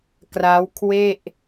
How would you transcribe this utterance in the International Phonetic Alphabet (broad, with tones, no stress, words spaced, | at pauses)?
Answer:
kra˦˥wkʰwe˥˩ʔ